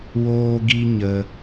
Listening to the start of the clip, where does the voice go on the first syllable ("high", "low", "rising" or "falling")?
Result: high